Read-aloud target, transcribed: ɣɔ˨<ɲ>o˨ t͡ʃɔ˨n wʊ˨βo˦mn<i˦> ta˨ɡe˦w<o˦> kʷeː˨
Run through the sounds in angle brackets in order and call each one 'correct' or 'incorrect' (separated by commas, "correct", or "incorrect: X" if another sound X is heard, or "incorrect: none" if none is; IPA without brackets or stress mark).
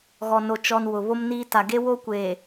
incorrect: n, incorrect: iː˦, correct